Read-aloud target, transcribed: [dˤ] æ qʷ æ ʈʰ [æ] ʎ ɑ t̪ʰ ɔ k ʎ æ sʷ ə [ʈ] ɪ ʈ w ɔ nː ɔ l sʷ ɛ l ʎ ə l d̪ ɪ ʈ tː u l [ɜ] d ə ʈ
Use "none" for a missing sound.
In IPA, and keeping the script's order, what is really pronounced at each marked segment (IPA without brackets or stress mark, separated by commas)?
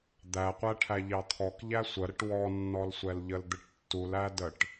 d̪, æ, ɾ, æ